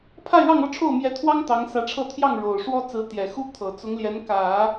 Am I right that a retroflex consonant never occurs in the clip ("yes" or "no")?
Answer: no